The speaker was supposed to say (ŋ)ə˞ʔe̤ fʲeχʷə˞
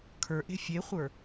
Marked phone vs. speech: incorrect: kʰ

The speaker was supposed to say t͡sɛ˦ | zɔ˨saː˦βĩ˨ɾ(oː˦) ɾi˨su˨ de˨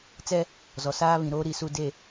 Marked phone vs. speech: correct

